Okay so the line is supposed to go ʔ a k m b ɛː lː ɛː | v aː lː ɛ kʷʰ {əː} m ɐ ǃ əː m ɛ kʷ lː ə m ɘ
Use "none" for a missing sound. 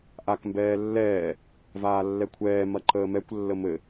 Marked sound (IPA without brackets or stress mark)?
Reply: ɛː